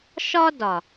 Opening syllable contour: high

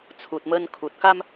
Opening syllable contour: low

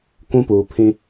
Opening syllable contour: high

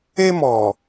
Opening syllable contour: high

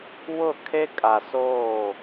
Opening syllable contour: falling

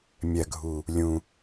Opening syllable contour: low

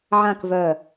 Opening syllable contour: falling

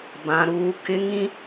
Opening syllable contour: high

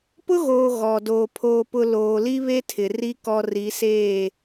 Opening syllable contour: high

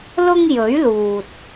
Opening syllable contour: high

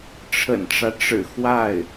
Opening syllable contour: low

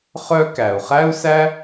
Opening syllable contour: high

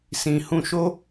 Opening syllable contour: low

